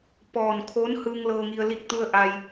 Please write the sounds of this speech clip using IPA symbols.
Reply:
p ɔː˩ n kʰ oː˧˥ n h ɯː˧ ŋ l ɤː˧ ŋ i˧ ə̯ l i˧˩ k̚ t̪ u˧ ə̯ ʔ a˧ j

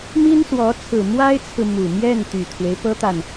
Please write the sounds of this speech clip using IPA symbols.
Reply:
m i˥ n s w ɔ˧˥ t͡sʰ ɹ̩˨˩ m w a˥ ɪ̯ t͡sʰ ɹ̩˨ m u˨˩ m j ɛ˥˩ n t̪ y˨˩ t̪ʰ w e˦ ɪ̯ p ɤ˥ t̪ a˨ n

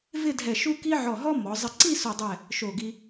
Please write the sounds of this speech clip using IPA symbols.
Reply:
v ɪ˥˧ dʱ ɛ˧˩ ʃ u˥ k i˥ ʕ ɔ˧˩ ɦ ɔ˥ m ɔ˩˧ zˤ ɪ˧˩ ǀ i˥˧ s o˧˩ dˤ ɛ˧˩ | ʃ o˧˩ ɡ i˧

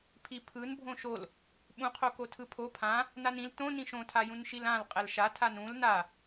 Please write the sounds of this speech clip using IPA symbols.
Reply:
pʰ i pʰ ɯ n bʱ õ ʃ o l | ɓ ũ qʰ o k o tʰ ɯ pʰ o pʰ ã | n a n ĩ l t õ n ĩ ʃ õ tʰ a j ũ n ʃ i l ã l qʼ ɛ l ʃ a tʰ a n ũ l n a

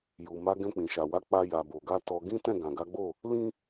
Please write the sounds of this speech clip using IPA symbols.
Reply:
j u˨ m a˨˦ ɡ ɛ̃˧ k͡p ĩ˨ ʃ a˨ w a˨˦ k͡p a˧ j a˨ b o˨ ɡ a˧ t ɔ˧ ɡ ĩ˦ t ɛ̃˦˨ ɡ ã˨ ɡ a˨˦ ɡ͡b o˦˨ | l ĩ˦

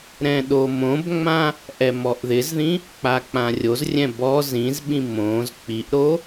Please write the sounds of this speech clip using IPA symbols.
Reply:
ɾ ɛ̃ ɗ o m õ b ŋ͡m ã | ʔ ɛ m ɔ ʔ ð ɪ z ð ĩ | k͡p a k͡p ã rʲ o z rʲ ɛ̃ b ɔ z ĩ z ɓ ĩ m õ z k͡p i ʔ ɾ o

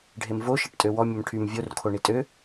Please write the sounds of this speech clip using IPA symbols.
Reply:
ɖʱ e m v o ʃ e ʈ tʼ ø w ɔ mʲ ə m ʈʰ y m vʲ o r kʰ o ɳ i tʼ ø

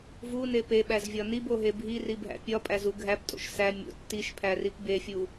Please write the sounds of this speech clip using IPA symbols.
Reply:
v u n e p e ɓ æ z vʲ ɒ n i b o ɦ e bʱ i r i bʱ æ̰ pʲ ɒ pʼ æ z u ɡʱ æ p tʼ o̰ ʃ s æ mʲ o̰ tː i ʃ pʰ æ r i p b e fʲ u

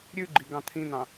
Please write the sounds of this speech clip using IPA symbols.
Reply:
ɾʲ ʉ ɡ͡ǃ i ɡ ɑ̃ t̪ʰ ĩ n̪ ɑ̃

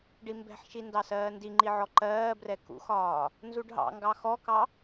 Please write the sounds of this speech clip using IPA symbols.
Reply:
ɖ i m b ɛ̤ ħ ʃ i n d ɑ s ɜː n d i ŋ͡ǃ i ʕ ɔ ǃ ɜː b r ɛ k ṵ x ɒː | n z u ɖ ɦ ɑ̰ ŋ ɡ ɑ x ɔ k ɑ

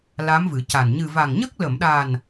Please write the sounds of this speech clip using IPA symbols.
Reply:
l a˧˥ m v ɨ˨˩˦ c a˨˩ n ɲ ɨ˨˩ v a˨˩ ŋ ɲ ə˦˥ k̚ l ə˨˩˨ m ɗ a˨˩ n

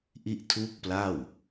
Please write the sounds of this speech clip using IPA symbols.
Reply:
ʔ i˥˩ ʔ tʰ uː˥˩ k̚ p l a˥˩ w

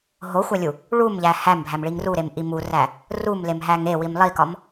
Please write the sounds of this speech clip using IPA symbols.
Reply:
ɦ o xʷ æ lʲ u | ɭ u m ʎ æ h æ m bʱ æ m ɭ i ŋ r u ɾ e m ʔ i m u r æ | r u m l e m ɦ æ ŋ e w i m lˠ i k ɒ m

